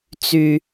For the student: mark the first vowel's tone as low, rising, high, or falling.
low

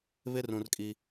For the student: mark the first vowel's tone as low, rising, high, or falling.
high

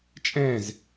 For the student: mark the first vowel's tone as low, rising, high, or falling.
falling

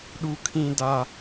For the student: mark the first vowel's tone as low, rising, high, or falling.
high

